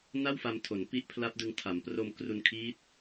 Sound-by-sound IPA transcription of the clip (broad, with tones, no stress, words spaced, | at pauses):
na˥˩wfa˧mtʰo˩˦n pi˦˥ʔpʰla˦˥p̚dɯ˧ŋ tʰa˩˦mpro˧m kru˧nkʰiː˦˥t̚